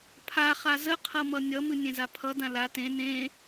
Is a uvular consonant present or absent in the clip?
present